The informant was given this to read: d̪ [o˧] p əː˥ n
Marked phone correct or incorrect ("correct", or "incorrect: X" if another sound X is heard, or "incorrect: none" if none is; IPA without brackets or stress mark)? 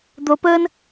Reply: correct